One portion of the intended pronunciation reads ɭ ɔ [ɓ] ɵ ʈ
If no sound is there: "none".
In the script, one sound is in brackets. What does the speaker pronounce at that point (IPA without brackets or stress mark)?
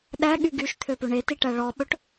ɓ